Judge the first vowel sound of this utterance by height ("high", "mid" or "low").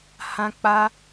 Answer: low